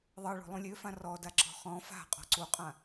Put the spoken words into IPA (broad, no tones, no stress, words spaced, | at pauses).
ðˤɤɭo̤ lˠũlʲøfã rɔdaǁɔ̤ χɔ̃ fa̤ qʼɔ̤ǀuqʼã